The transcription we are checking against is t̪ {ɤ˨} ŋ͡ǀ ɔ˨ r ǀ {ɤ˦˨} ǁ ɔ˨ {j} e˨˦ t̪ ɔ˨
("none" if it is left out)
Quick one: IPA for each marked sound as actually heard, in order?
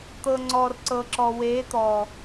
ɤ˨, ɤ˨, w

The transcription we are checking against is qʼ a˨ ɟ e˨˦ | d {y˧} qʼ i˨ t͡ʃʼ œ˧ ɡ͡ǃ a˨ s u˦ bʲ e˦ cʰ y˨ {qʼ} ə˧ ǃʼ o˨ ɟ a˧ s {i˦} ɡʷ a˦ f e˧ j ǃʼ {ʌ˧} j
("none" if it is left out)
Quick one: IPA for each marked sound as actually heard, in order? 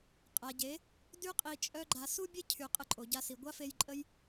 y˧, qʼ, i˨, ə˧

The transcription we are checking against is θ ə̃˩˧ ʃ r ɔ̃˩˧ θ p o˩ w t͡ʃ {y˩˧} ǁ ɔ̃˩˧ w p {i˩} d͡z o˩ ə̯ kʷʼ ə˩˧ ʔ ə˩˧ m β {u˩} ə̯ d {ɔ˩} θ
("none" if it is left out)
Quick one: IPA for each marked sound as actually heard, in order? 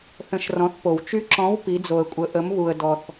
y˧˥, i˩˧, u˩, ɔ˩

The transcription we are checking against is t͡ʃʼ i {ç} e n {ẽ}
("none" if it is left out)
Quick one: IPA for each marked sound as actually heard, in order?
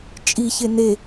ç, e

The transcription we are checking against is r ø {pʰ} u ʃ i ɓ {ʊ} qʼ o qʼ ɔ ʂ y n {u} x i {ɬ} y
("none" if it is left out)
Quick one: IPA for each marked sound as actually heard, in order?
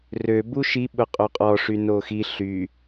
b, ʊ, o, ɬ

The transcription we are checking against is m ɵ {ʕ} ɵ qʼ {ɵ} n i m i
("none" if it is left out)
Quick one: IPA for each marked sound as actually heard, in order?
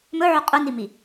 ʕ, ɵ

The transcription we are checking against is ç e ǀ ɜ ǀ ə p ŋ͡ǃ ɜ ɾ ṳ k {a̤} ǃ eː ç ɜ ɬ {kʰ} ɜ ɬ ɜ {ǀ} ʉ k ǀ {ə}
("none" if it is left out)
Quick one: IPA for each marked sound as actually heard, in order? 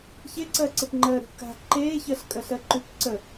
a̤, kʼ, ǃ, ə

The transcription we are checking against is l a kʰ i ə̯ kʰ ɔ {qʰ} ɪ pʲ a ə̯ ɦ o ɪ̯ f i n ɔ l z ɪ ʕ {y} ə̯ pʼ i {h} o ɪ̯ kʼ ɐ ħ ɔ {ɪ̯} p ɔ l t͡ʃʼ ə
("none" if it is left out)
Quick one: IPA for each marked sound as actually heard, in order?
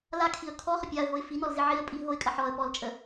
χ, i, ɦ, ə̯

